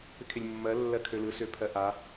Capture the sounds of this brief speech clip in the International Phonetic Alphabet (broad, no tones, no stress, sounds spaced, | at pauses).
p ɪ kʰ ɪ lʲ mː ɜ lː ɜ kʰ ø l ɯ s ø pʰ ɜ ʔ a